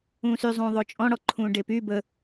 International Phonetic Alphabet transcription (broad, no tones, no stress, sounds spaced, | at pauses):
ũː s y zˤ ũː ðˤ o t͡ʃʼ ɔ̃ ɽ ɔ ǃʰ ũː ɖ e p y b ə